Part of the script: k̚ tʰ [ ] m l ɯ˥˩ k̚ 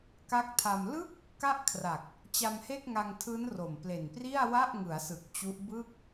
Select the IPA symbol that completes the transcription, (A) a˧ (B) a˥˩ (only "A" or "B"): A